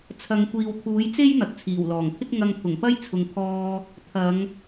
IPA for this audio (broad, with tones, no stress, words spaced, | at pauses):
t͡sʰɐ˨˧ŋ kʷiː˨wkʰuː˨˥jt͡se˥j n̪ɐ˨k̚t͡sʰiː˨˩w lɔː˨˩ŋpʰɪ˥k̚ ŋɐ˧ŋt̪ʰʊ˨˩ŋ pɐ˥jt͡sʰʊ˨ŋkʰɔː˧ | t̪ʰɐ˨˧ŋ